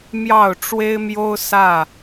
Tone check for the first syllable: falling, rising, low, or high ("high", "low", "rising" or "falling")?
falling